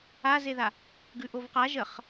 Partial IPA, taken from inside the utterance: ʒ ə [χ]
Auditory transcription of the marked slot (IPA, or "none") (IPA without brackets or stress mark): χ